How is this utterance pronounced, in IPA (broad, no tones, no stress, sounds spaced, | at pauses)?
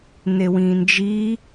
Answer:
n e w ĩː n d͡ʒ i